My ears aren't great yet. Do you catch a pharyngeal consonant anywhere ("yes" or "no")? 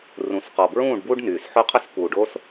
yes